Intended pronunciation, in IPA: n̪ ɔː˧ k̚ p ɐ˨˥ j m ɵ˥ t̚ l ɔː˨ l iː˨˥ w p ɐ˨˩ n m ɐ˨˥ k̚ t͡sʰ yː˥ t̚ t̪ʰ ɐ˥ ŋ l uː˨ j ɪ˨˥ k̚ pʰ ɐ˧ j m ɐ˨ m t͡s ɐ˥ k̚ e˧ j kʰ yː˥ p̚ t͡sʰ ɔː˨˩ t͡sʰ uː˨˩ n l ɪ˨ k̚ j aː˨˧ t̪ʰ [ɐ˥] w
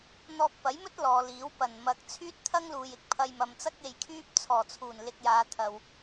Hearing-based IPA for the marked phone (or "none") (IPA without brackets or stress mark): ɐ˨